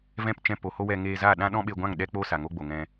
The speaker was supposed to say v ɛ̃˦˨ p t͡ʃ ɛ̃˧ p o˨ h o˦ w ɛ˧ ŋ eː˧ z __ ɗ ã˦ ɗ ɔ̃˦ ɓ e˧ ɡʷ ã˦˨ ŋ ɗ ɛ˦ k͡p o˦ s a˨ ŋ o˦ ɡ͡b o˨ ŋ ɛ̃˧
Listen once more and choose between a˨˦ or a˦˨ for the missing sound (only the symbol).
a˦˨